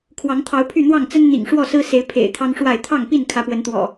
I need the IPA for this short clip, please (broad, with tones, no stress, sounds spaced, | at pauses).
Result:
kʰ w ɑ˨˦ ŋ t̪ʰ ɑ˨˦ ʊ̯ pʰ y˥˨ n̪ w ɑ˥˨ ŋ t͡s ə˦ n n̪ ḭ˨˩ ŋ ʂ w ɔ˥˨ s ɹ̩˦ s e˨˦ ɪ̯ pʰ ḛ˨˩ ɪ̯ t̪ʰ ɑ˦ ŋ ʂ w a˥˨ ɪ̯ t̪ʰ ɑ˥˨ ŋ p i˥˨ n kʰ ä˨˦ p w ə˨˦ n t̪ w ɔ̰˨˩